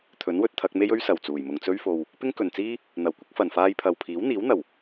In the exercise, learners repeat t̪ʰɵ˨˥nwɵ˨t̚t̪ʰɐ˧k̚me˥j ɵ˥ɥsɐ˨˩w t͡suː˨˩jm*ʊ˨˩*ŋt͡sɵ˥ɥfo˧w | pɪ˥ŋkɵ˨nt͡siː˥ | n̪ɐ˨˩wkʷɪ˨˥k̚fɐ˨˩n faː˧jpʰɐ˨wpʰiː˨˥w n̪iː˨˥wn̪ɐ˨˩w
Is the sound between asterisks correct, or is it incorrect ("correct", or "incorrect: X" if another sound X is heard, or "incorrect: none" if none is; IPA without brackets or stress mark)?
incorrect: ʊ˨